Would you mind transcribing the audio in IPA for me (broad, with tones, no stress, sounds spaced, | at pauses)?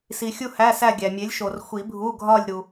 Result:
s i˨ xʲ u˥˧ h æ˧˥˧ s æ˥˧ ɡʲ æ˨ mʲ e˨˥ lʲ ʃ o˨ r xʷ i˨˩˦ bʱ u˧˥˧ ɡʱ ɒ˥˧ lʲ ɾ u˨